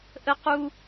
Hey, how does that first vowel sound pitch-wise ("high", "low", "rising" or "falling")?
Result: high